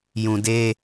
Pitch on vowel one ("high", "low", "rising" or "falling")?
low